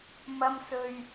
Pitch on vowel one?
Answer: high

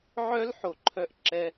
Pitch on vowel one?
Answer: high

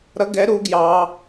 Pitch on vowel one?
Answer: rising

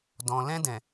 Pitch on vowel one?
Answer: low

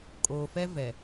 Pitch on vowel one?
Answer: low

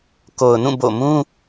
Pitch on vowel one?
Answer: low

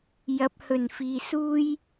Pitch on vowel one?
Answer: rising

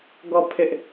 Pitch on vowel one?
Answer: falling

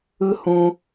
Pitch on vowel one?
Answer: low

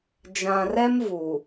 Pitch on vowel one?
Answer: low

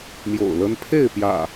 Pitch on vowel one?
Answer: low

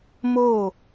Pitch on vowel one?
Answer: falling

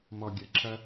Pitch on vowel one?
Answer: low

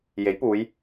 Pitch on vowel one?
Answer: rising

